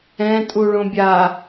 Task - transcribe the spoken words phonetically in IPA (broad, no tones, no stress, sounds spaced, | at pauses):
ɛ̃ tʼ u ɭ õ bʲ a